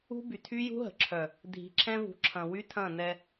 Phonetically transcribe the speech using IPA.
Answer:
ṳ˦by˨ tʰy˦jṳ˦ɦə̤˨ǁʰœ˨ | dʱi̤˨ǁʰɛ̃˦vṳ˨ǁʰɐ̃˨ wy˦tʰɐ̃ː˦˨ nɛ˦

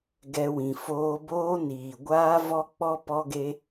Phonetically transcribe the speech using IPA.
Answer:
ɡɛ˧ wĩ˨ foː˧boː˦ niː˨ ɡʷaː˦vɔ˦ k͡pɔ˦pɔ˦ɡe˦

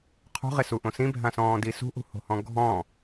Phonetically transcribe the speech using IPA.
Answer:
qʰṳʁesuʔõ sĩbʱãsɔ̃ːdi sṳʔṳho̤hɔ̃ ɡʱɔ̃

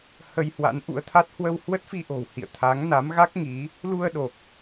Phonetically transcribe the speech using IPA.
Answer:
hə˧jhwa̰˧˥nʔṵ˧˥ə̯t̪ʰa˦˥t̚ hwə˧whwə˦˥t̚fi˧ʔo̤˨˩w hḭ˧˨ə̯t̪ʰa˨˦ŋ na˨˦mɣa˦˥k̚ŋi˨˦ | lu˧ə̯ɗo˨˩k̚

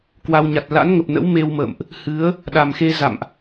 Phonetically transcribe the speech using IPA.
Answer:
kwa˧wɲa˨˩t̚ la̰˧˥nŋə˨˩p̚nə̰˧˥w me˧wmə̰ː˧˨mʔ | hɨ˨˦ə̯ | ɗa˨˩mxe˧ za̰˧˨mʔ

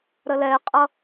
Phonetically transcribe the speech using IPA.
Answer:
ɾəlɛqʼʌ

